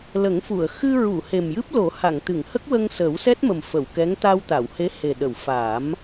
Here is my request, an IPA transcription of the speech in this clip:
l ə˨˩˦ ŋ f u˨˩˨ ə̯ x ɨ˧ ɹ u˨˩˨ h e˨˩ m j ɨ˦˥ p̚ l o˨˩˦ h a˨˩˨ ŋ t̪ ɨ˨˩˨ ŋ h ə˦˥ k̚ w ə˧ ŋ s əː˨˩˦ w s ɛ˦˥ t̚ m ə˨˩ m f ə˨˩˨ w k ɛ˧˥ ŋ t̪ a˧ w t̪ a˨˩˨ w h e˧˥ h e˨˩ ɗ ə˨˩˨ w f aː˨˩˦ m

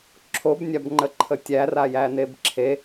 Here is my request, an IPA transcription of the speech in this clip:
ǁʰ o b nʲ a b ŋ͡ǃ ə ǃʰ ə tʲ æ r a j æ n e b ǁʰ e

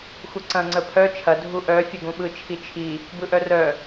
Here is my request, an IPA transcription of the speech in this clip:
xʷ ə ǀ ɐ̃ ŋ͡ǀ ə pʰ œ t͡ʃʰ ɐ dʱ u ʔ œ fʲ ɵ ɡ ũ ɓ ɯ t͡ʃʰ i t͡ʃʰ i | b ɯ ʔ œ r œ

